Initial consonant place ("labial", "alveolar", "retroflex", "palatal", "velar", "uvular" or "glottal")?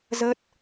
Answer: alveolar